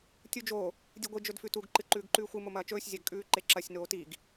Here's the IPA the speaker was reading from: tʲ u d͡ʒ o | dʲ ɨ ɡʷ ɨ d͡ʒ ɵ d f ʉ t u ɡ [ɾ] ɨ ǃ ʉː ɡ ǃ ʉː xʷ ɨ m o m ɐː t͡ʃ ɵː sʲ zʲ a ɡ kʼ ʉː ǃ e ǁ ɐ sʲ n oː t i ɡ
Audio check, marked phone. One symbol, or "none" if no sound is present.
ǃ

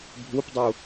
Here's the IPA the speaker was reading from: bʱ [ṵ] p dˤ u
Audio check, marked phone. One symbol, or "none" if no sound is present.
u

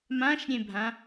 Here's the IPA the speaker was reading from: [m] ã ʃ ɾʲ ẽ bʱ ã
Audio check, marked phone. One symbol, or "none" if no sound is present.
m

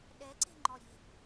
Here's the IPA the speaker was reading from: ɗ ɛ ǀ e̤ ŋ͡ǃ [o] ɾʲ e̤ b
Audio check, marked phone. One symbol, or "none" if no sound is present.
ɔ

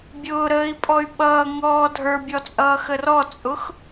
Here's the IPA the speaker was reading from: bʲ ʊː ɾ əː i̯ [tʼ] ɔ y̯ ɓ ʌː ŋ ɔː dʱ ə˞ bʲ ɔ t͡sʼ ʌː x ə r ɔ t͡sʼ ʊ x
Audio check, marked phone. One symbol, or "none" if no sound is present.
pʼ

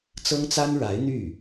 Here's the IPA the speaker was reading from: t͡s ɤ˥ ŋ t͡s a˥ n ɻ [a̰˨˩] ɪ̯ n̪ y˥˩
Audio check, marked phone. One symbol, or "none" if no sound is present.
a˧˥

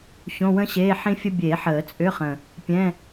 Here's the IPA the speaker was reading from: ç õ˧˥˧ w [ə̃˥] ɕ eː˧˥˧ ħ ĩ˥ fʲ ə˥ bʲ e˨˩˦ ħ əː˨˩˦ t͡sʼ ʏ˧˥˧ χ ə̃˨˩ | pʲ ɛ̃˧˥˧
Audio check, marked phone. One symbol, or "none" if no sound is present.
ə̃˥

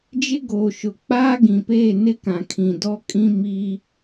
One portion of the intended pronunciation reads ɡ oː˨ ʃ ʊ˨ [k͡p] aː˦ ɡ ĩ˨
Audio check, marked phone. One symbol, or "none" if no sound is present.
k͡p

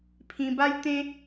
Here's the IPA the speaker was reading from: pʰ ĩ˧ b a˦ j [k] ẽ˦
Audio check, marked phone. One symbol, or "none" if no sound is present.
t̪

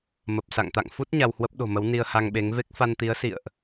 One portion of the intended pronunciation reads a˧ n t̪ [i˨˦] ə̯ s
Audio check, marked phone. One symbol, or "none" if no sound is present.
i˨˦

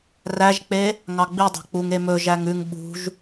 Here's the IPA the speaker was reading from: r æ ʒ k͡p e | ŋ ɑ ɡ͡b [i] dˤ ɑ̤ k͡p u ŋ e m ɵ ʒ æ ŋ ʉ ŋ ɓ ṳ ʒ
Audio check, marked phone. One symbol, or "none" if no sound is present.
i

